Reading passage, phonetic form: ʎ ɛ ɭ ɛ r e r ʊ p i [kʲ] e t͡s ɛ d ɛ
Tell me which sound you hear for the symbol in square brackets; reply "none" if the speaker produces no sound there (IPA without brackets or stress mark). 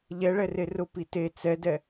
t